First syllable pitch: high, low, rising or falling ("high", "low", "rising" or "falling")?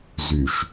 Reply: low